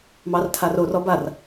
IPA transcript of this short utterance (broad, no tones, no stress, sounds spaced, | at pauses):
m ɑ r tʰ a r o r ɔ b a r